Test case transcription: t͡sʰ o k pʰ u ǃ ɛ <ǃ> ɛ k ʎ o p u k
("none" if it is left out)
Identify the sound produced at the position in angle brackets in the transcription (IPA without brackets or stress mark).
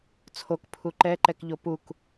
ǃ